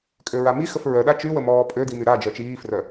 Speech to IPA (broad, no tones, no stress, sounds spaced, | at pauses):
kʼ ø ɹ a m i x ə f ɹ œ ɗ a t͡ʃ y w ə m ɔː pʼ ø d i m y ɾ a d͡ʒ œ t͡ʃ iː f r œ